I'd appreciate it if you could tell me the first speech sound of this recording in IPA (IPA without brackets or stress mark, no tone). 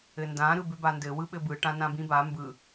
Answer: ɘ